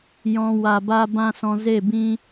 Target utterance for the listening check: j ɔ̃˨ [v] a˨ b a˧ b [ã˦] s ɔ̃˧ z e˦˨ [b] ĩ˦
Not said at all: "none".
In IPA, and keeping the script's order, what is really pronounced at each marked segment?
w, ã˦, b

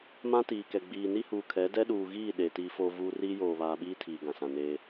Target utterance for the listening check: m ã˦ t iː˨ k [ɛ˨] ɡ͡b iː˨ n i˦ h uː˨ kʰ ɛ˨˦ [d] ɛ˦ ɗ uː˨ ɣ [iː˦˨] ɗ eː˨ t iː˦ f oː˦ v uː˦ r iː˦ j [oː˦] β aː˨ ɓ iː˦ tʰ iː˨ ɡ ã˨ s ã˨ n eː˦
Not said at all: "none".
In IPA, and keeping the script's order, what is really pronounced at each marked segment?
ɛ˨, d, iː˦˨, oː˨

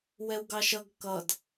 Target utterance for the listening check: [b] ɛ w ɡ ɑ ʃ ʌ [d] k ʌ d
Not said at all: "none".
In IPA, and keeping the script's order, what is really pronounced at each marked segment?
w, ɡ

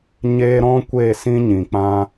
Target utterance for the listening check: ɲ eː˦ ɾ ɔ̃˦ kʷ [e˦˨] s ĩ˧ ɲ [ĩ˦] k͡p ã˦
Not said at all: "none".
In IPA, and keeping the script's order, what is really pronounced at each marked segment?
e˦˨, ĩ˨

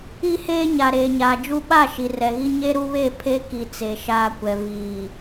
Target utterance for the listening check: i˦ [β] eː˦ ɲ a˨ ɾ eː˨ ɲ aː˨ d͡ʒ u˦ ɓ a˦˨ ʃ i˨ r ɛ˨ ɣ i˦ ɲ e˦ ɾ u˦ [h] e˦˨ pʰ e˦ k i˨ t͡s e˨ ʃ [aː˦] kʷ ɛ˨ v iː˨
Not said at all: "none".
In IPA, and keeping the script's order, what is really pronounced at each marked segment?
h, β, aː˦

